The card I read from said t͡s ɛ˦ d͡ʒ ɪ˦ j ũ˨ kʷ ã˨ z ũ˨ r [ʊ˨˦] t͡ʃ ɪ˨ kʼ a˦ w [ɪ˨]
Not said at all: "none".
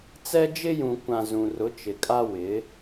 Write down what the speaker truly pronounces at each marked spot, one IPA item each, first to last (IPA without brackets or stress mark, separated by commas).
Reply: ʊ˨˦, ɪ˨˦